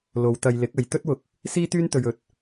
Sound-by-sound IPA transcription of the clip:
lo˨˧wt̪ɐ˧j lɪ˨˥k̚ɐ˨j t̪ɵ˥t̚wʊ˧k̚ | siː˥t̪yː˥nt̪ɵ˧ɥ ɵ˧t̚

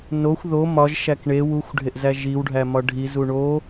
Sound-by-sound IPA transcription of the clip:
noxʷ ðo mɒʒ ʃækɳe wuxʷɖʱeʔzæ ʒiw ɖʱæmɒɖʱi zuɳo

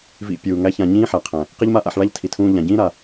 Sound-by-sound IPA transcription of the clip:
vḭ˧pʲuː˨ŋæ˦çã˧ ɲĩː˦ħæ˨qʰæ̃˨ | qi˦ʎma˦ʔa̰˧ħ ɭa˦ʎtʰi˨ tʰũː˧ʎã˨ɟĩː˦ ɾa˧

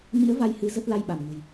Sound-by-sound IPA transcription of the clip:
mḭ˧˥ə̯ va˧j hɨ˨˦ zə˦˥t̚la˧jɓa˧˩mŋə̤˨˩j

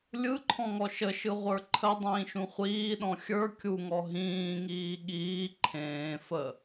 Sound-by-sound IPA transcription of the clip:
lʲɯǃʰɔ̃ŋɔ ʃəʃɯʁʷə˞ ǃʰədˤĩːʃũ χʷiːɗɔ̃ xʲə˞ kʲuŋɔ ɦĩːŋiː ɠiː ǃʰẽː fə

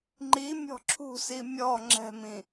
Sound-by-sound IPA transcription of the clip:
ŋ͡ǃimʲɔ̤ ǁʰṳsi mʲɔ ŋ͡ǁɛ̤mĩ

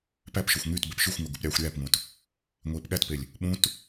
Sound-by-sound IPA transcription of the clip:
pæpʃøxʷ ŋyːt bepʃyxʷŋo ɡupɾʲɑːxʷɾʲæːpŋũt | ŋʷeːpɠætpelʲ | ɓũt

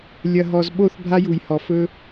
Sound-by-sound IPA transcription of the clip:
lʲɐ˨ɦɔ˨z ɓo˦˨θbʱa˦ju˨jhɔ˨ fɵ˦

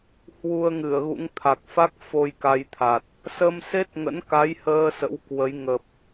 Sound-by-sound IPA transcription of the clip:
hwu˧ə̯ŋɨ˧˩ə̯ɣṵ˧˥ŋ t̪ʰa˨˩k̚fa˦˥k̚ fo˧jka˧jt̪ʰa˨˩t̚ | sə˧mse˦˥t̚ ŋə̰˧˥nka˨˦jhəː˧ sə̰˧˥wkwə˨˦j ŋə˨˩p̚

